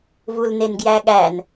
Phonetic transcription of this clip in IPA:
v u l n e n ɡ j æ ɠ æ n

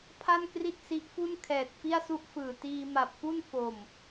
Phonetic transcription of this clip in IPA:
pʰ a˥˩ n k r i˥˩ t̚ s i˦˥ ʔ f u˥˩ n kʰ ɛː˨˩ t̚ f i˥˩ a̯ s u˥˩ ʔ f ɯː˨˩ t iː˧ m a˨˩ p̚ f u˥˩ n f o˨˩ m

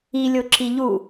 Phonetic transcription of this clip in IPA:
i lʲ o ǁ i ʎ u

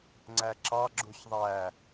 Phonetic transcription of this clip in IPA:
ŋ͡ǀ æ ǁ ɑ ɡ͡ǁ u ç ðˤ æ

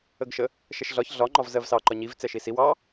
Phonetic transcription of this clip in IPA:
ə ɡ ʃ ə | ʃ ɛ ʃ ɮ ɒ ç ɮ ɒ ŋ͡ǃ ɒ v z ɜ v s ɑ ǃ ɒ ɲ i v t͡s ɛ ʃ i s i w ɑ

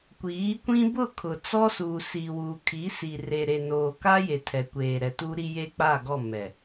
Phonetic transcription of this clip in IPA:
kʷ iː˨˦ kʷ ĩ˦ b ʊ˦˨ kʰ ʊ˨ t͡s ɔ˦ s uː˨ s iː˨ w uː˨ kʰ i˨˦ s i˨ r e˨ ɾ e˨ n oː˨ k a˦ j e˨ tʰ ɛ˨ kʷ eː˨ ɾ ɛ˨ t uː˦ ɾ i˦ j e˦ k͡p a˦˨ ɡ ɔ˦˨ m ɛ˨

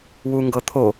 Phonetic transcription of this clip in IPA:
w u ŋ ɡ ɤ t̪ʰ o

